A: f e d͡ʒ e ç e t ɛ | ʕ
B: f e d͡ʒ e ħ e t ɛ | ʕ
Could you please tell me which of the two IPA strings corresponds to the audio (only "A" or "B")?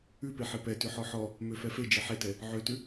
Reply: B